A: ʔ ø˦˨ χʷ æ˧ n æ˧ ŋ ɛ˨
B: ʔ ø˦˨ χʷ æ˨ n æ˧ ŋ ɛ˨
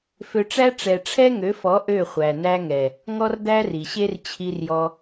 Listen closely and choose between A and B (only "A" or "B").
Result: B